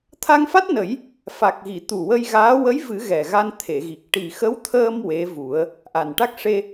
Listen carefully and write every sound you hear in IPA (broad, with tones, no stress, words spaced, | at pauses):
t̪ʰa˧ŋfa˦˥t̚nə˨˩˦j | fa˨˩k̚ɣi˨˩˨ t̪u˨˩ wə˧jɣaː˧˥ wə˧˥jvɨ˨˩˦ ɣɛ˨˩ɣa˧nt̪ʰe˨˩˨ɣi˨˩k̚ ʈi˨˩xə˧˥wt̪ʰəː˧m we˧˥vu˨˩˦ə̯ | ʔa˨˩nʈa˦˥k̚ ʂe˧